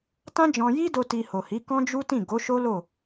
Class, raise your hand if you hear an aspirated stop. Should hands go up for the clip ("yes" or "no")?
no